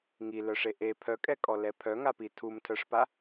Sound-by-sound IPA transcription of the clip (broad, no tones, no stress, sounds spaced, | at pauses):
ŋ i l œ ʂ e ʔ e pʰ œ kʼ ɛ kʼ ɔ l ɛ pʰ œ ŋ a p i tʰ u m tʰ œ ʂ p a